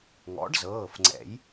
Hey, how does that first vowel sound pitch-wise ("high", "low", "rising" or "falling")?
rising